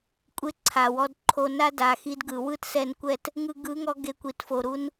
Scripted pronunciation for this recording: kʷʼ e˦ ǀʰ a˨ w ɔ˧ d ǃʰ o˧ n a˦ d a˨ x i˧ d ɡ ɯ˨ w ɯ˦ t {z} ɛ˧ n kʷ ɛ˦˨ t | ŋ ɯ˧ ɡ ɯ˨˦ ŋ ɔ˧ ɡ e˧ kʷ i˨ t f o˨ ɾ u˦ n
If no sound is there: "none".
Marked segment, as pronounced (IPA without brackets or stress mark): s